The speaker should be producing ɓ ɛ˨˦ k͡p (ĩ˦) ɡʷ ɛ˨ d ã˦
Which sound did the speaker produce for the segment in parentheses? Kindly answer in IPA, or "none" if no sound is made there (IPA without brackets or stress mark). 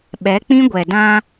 ĩ˦